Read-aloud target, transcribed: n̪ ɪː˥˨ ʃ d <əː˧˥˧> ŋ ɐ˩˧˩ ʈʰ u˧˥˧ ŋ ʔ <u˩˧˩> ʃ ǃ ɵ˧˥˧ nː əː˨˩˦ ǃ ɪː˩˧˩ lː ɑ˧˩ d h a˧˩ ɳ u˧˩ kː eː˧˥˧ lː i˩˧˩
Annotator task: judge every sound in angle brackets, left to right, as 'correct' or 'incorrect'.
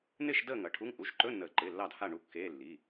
incorrect, correct

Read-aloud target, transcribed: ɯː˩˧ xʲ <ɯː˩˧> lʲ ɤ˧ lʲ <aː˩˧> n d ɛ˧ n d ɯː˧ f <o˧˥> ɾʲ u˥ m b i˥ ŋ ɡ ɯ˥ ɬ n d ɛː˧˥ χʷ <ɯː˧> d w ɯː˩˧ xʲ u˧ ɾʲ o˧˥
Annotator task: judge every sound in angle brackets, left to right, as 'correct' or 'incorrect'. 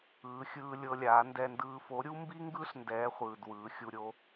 incorrect, correct, correct, incorrect

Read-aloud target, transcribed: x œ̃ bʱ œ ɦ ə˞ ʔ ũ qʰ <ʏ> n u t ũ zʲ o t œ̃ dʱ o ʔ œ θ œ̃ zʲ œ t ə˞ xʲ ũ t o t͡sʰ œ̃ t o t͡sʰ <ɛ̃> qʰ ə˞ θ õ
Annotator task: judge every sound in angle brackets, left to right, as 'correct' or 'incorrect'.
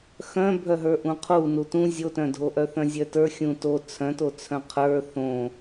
incorrect, incorrect

